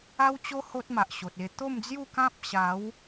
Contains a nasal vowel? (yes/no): yes